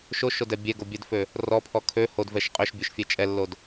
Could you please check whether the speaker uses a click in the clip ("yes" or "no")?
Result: no